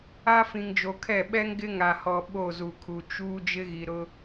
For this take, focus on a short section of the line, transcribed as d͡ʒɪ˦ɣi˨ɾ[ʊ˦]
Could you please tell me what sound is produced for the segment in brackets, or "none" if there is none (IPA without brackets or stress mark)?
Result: ʊ˦